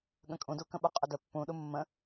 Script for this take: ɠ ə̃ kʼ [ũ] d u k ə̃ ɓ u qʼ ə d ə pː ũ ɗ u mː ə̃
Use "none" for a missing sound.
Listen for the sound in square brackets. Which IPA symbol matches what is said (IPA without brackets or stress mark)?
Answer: ũ